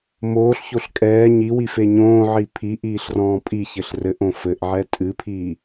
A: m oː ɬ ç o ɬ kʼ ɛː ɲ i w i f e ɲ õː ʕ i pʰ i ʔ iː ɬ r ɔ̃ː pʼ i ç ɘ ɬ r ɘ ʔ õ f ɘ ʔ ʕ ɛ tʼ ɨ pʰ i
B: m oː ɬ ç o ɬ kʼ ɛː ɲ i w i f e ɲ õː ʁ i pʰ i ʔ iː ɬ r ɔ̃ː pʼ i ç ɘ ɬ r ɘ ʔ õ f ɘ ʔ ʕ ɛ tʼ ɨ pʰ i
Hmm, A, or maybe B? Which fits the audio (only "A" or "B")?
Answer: A